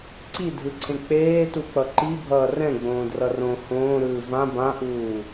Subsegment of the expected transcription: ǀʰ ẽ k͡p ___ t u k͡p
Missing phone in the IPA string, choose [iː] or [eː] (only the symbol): eː